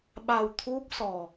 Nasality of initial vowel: oral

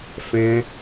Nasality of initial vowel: nasal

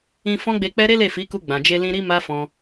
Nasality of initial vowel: nasal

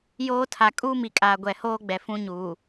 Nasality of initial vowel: oral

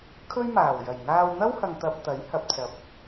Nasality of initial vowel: oral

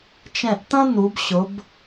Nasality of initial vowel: nasal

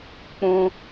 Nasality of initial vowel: nasal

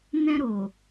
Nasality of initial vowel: nasal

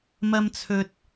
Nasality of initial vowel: oral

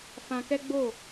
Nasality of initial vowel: nasal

